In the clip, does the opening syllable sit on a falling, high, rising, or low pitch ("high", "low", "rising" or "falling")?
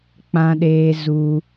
high